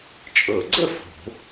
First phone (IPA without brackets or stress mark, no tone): t͡ʃʼ